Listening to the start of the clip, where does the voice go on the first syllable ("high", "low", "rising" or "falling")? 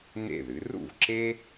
falling